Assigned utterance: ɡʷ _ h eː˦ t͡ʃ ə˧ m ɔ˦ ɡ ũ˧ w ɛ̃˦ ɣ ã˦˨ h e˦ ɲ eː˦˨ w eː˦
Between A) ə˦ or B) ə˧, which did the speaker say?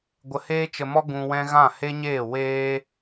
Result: B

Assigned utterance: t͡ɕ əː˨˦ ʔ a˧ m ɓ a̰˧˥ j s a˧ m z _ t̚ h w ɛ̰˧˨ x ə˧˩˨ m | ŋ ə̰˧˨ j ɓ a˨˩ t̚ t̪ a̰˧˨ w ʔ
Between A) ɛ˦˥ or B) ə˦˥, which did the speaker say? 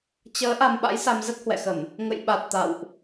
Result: B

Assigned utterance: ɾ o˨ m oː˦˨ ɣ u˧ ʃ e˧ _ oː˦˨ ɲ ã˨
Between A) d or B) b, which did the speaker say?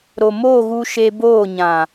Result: B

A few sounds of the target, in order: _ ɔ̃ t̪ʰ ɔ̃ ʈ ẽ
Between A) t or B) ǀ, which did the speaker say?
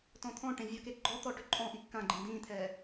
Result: A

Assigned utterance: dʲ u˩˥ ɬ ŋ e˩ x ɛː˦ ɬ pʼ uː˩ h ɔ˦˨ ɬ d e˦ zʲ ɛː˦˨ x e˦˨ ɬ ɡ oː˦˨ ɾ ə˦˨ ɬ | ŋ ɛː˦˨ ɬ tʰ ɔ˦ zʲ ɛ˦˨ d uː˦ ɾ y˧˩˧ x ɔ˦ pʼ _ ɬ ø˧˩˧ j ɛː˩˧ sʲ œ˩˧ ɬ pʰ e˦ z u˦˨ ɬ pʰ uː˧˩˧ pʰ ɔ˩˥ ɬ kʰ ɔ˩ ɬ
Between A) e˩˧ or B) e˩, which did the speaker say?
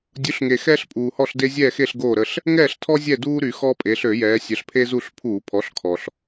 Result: A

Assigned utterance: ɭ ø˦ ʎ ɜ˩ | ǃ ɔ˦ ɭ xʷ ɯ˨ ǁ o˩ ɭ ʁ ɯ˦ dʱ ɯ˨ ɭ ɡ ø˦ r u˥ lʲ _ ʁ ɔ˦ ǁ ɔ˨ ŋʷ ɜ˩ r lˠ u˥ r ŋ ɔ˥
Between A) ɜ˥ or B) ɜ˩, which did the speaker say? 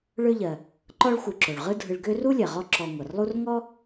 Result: B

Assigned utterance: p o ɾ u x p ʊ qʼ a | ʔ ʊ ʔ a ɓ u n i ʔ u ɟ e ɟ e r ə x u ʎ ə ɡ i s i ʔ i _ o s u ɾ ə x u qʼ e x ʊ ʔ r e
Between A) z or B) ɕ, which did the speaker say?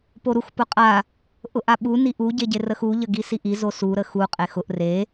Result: A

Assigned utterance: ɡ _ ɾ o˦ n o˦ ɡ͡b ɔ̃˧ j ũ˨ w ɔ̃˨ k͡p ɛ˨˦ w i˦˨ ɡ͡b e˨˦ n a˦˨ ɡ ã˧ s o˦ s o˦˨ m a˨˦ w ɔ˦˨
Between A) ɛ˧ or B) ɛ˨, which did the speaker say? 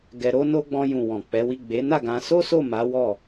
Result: A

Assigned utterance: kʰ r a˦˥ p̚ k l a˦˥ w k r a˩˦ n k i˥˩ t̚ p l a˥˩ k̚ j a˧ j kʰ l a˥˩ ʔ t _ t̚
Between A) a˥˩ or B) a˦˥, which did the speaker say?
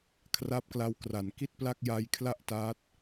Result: B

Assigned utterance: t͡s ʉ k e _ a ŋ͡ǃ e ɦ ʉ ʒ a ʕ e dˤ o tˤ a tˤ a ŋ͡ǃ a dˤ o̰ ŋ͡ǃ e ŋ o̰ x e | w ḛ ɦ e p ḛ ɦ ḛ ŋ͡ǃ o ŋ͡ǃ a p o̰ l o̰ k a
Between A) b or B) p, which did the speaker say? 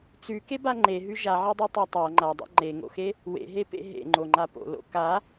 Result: A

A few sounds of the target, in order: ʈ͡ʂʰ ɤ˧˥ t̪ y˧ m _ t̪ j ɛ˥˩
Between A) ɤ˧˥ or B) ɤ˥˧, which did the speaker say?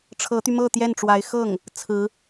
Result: B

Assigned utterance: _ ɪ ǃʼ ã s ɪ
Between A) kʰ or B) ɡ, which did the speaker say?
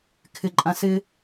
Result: A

